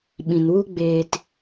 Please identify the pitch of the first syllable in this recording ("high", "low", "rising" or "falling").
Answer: low